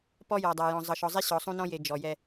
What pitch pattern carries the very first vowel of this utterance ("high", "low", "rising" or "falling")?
high